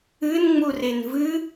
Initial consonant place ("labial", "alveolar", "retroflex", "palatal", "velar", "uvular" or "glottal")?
alveolar